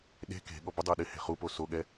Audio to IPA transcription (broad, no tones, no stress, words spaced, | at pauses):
ɗe̤ ke̤ɠɔ bɪdˤe ɗɪhe̤χupo soɠɛ